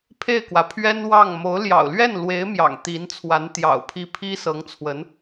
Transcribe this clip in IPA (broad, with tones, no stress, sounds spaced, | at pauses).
pʰ e˥˩ ɪ̯ k w ä˩ pʰ ɥ ɛ˥ n w ɑ˥˩ ŋ m o˧˥ ʊ̯ l j ɑ̰˨˩ ʊ̯ l ɥ ɛ˥˩ n l w e˧˥ ɪ̯ m j ɑ̰˨˩ ŋ t̪ i˧˥ n t͡sʰ w a˧˥ n t̪ j ɑ̰˨˩ ʊ̯ pʰ i˥˩ pʰ i˥ s ɤ˧˥ ŋ t͡sʰ w ə˧˥ n